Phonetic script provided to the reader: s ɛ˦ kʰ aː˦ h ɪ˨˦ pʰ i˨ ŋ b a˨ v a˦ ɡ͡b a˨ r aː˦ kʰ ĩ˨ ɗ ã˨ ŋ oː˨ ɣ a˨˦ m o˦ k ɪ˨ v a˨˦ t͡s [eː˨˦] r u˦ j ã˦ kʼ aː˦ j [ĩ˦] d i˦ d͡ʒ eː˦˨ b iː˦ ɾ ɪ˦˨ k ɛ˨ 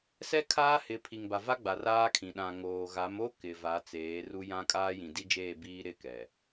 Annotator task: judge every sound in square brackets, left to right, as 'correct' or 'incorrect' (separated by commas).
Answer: correct, incorrect